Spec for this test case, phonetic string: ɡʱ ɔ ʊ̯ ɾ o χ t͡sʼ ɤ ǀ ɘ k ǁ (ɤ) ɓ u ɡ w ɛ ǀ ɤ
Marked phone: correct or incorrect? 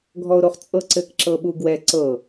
correct